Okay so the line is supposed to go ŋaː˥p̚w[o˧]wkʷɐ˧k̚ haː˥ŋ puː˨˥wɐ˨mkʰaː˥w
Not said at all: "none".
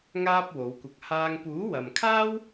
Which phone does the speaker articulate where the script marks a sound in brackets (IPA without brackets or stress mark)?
o˨˧